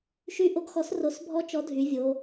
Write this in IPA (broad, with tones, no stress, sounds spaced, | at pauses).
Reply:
ʃ y˦ ʔ o˦ ɡ x ɔ˨˥ s r o˨˥ s bʱ ɔ˦ t͡ʃ ɔ˨˥ dʱ y˩˧ vʲ o˩˧